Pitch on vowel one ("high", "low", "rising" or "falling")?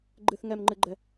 high